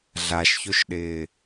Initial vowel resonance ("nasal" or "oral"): oral